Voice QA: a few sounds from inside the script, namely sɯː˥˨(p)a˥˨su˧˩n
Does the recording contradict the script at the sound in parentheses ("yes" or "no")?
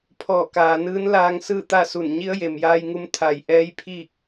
yes